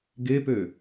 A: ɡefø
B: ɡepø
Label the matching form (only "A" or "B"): B